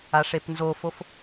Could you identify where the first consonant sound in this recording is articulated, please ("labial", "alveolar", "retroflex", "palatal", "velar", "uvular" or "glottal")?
retroflex